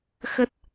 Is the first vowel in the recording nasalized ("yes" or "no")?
no